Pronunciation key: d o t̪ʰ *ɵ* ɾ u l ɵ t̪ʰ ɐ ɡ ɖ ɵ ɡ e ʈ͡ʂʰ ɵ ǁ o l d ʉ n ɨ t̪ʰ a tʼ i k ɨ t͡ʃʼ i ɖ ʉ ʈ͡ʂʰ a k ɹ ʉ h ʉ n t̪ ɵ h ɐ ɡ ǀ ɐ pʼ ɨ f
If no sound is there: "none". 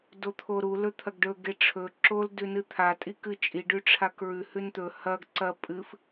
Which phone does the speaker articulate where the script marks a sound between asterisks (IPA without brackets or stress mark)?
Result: o